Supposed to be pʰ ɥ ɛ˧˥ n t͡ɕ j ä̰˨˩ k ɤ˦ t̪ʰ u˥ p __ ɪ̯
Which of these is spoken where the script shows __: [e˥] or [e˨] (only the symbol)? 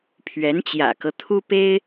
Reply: e˥